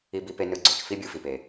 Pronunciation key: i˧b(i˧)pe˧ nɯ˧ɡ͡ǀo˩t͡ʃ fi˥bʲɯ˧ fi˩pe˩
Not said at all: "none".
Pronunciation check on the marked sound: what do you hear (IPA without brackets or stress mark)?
i˧